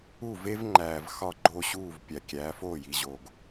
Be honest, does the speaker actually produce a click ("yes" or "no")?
yes